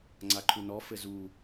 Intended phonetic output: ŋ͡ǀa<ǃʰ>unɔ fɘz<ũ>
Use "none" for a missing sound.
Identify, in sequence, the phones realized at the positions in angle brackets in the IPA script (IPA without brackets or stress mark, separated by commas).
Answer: ǃʰ, u